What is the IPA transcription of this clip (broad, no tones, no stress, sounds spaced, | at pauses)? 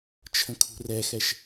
t͡ʃʰ ə̃ kʰ ṳ r ɛ x ɛ ʃ